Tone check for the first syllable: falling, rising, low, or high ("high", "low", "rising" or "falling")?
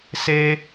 high